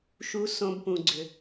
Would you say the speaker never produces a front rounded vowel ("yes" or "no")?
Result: no